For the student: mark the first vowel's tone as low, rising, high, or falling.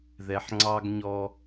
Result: low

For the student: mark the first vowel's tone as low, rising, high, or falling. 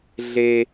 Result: high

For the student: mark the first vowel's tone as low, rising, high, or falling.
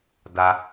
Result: high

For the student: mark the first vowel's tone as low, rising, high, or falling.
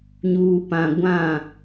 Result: low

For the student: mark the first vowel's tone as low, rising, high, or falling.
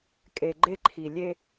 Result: low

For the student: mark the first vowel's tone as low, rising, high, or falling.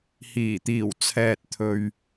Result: low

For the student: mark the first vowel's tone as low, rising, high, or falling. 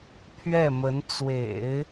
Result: falling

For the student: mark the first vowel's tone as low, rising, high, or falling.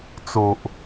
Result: low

